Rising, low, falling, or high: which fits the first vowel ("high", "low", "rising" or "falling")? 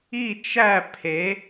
falling